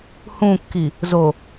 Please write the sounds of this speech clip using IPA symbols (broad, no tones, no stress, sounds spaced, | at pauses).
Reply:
h ũ kː i | z o